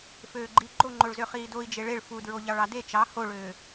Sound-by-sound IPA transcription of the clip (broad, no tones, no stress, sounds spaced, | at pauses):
f øː ɡ͡ǃ i ɡ͡ǃ o ŋ͡ǃ o ɭ z ø χ iː d o i̯ d͡ʒ e ɭ e ɭ f u d ɹ o ʎ ɑ ɭ ɑ d e t͡ʃ ɑ h o ɭ øː